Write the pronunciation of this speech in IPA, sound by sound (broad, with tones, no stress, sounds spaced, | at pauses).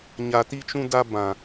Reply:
ɲ a˨ t i˧ t͡ʃ ũ˧ d a˧ b ã˨